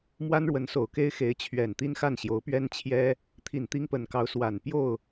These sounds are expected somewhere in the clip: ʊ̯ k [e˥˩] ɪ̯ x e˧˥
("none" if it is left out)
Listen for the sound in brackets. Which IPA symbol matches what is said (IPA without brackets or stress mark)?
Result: e˥